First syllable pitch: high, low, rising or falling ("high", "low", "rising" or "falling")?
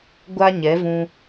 high